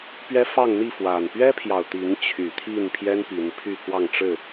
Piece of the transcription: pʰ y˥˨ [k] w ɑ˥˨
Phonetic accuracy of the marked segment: correct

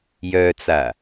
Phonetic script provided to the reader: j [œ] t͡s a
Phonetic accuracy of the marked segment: correct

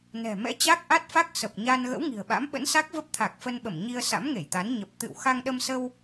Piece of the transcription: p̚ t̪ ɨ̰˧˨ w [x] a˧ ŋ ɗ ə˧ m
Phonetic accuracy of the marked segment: correct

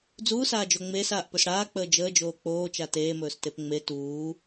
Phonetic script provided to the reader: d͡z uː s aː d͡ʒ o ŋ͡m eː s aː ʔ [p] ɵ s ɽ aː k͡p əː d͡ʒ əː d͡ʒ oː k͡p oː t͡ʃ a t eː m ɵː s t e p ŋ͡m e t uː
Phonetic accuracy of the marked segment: correct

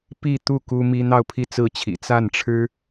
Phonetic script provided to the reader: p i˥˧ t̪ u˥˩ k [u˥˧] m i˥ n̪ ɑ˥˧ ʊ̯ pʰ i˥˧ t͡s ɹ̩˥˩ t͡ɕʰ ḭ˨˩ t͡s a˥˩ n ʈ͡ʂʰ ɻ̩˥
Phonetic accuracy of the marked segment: incorrect: u˥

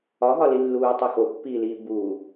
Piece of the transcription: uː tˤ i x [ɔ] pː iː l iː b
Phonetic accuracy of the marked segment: incorrect: o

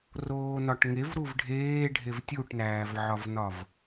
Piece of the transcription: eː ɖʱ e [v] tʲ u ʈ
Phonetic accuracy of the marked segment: correct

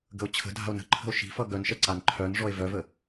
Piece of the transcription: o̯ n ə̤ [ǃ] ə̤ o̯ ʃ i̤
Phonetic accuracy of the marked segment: incorrect: ǃʰ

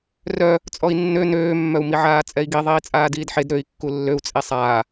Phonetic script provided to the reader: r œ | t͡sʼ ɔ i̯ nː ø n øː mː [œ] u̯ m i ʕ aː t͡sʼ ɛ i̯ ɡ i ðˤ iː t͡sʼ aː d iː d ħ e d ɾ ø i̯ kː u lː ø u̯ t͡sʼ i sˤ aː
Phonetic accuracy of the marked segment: correct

